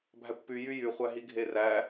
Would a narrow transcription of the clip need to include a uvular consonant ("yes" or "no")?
yes